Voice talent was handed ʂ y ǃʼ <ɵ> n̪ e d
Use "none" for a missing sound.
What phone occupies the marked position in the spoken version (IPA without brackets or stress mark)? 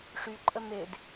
ə